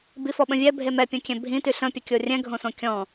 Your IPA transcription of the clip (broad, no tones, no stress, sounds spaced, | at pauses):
b i f ɔ ɓ ə̃ vʲ ɛ bʱ e m ɛ pʲ õ kʲ ɛ̃ bʱ ĩ t y ɬ ə̃ pʲ ə kʲ o rʲ ɛ̃ ɡʱ õ s õ kʲ ɔ̃